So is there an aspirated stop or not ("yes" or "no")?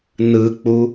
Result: no